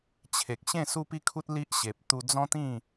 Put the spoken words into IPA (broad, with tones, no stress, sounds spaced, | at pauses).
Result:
t͡ɕʰ e˨ k̚ ɕ ẽ˥˧ s u˦ p i˦ kʰ u˦ t̚ l i˦ ʔ ɕ e˨ p̚ t̪ u˧ d͡z ɔ̃˦ t̪ ĩ˥˧